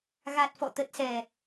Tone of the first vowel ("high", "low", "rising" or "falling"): low